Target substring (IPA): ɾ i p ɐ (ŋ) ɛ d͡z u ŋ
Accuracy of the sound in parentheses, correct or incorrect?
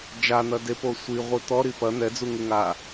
incorrect